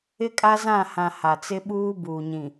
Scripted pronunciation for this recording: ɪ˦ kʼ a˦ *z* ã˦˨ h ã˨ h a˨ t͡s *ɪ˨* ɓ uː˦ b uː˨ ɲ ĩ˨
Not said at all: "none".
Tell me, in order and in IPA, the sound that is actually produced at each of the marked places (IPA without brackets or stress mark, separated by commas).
z, ɪ˦